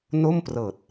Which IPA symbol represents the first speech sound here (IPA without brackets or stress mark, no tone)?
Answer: n